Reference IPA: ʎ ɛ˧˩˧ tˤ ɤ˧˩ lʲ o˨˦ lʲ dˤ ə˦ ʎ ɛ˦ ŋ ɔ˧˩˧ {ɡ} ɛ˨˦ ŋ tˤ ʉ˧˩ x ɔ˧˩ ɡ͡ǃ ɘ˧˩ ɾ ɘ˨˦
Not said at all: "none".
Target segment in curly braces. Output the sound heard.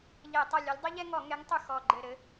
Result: ŋ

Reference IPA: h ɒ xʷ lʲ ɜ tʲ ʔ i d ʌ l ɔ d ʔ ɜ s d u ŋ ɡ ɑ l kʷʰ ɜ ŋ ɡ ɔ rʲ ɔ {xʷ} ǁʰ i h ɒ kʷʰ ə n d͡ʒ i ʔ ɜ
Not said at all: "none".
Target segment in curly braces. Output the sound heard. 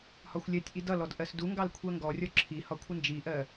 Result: none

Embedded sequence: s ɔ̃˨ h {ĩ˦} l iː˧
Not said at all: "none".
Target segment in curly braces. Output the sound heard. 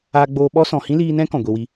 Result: ĩ˦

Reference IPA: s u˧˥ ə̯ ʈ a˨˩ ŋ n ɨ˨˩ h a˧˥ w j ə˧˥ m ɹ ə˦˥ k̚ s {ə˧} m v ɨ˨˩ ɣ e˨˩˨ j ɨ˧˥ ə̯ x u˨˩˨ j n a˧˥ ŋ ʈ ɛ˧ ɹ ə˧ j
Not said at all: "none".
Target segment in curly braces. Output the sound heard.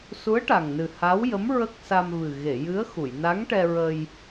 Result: a˧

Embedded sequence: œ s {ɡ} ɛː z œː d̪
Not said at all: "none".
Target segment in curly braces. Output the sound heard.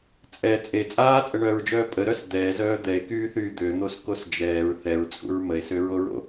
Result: d̪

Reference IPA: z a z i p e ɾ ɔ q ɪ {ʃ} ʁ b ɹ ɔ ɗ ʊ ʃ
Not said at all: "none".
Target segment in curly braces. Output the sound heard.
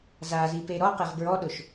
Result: none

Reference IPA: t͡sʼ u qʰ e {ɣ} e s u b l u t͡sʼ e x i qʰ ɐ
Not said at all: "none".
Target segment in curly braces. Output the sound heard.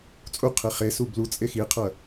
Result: χ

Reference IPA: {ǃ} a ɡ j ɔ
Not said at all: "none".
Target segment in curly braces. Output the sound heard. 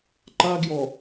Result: ǃ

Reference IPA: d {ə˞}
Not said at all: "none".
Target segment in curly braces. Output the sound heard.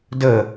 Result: ə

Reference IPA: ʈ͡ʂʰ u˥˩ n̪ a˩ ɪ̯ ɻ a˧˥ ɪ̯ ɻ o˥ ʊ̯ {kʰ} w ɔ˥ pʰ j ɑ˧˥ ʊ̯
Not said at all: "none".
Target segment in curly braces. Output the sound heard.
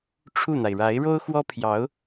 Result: x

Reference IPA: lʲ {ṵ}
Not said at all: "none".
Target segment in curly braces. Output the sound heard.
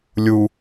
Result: u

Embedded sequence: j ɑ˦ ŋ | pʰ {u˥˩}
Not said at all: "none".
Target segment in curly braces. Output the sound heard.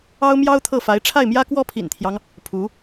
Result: u˧˥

